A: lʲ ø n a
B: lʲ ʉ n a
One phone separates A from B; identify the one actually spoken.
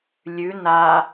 B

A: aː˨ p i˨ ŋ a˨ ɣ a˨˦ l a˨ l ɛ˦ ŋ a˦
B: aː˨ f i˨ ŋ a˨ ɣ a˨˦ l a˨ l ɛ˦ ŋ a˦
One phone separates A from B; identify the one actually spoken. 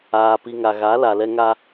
A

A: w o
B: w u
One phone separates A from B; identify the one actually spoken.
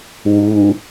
B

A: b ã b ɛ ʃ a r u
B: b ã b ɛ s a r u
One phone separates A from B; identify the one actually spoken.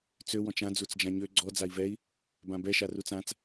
A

